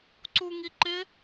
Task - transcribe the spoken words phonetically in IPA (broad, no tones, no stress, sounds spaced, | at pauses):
ǀ u ŋ i ǃ ɪ